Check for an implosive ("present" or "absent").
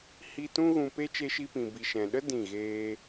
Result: present